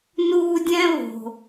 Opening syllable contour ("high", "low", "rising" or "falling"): high